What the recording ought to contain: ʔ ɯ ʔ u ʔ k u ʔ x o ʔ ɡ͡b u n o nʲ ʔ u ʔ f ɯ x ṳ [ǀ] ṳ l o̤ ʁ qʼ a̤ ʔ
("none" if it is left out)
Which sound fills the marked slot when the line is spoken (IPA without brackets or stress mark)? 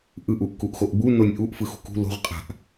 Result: k